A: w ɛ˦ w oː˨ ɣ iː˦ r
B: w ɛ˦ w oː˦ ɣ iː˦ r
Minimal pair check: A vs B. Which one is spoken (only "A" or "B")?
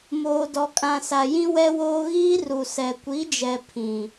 B